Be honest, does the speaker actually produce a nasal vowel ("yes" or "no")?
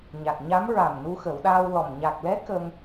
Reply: no